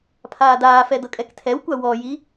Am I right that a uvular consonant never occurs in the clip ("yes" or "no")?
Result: yes